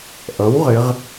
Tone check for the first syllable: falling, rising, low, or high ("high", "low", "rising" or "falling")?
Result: rising